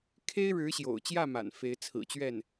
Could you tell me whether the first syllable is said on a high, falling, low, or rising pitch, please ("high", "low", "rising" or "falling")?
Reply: high